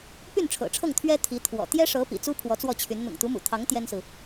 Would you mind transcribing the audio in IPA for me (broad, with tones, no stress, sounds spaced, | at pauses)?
p y˥˩ n ʈ͡ʂʰ ɤ̰˨˩ ʈ͡ʂʰ ɤ˥˩ ŋ t̪ʰ ɥ ɛ˥ t̪ʰ i˧˥ t̪ʰ w ɔ̰˨˩ t̪ j ɛ˥ ʂ ɤ˧˥ p ḭ˨˩ t͡s u˥ pʰ w ɔ˧˥ t͡s w ɔ˥˩ t͡ɕʰ y˧˥ n n̪ ʊ̰˨˩ ŋ t̪ u˧˥ m ṵ˨˩ t̪ʰ ɑ˧˥ ŋ t̪ j ɛ˥ n s ɹ̩˨